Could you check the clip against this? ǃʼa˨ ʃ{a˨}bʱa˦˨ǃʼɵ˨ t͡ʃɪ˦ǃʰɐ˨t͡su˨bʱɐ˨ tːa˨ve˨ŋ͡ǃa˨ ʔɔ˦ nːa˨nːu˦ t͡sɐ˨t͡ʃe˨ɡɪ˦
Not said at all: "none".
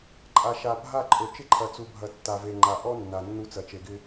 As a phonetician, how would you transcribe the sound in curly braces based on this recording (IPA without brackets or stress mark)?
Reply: a˨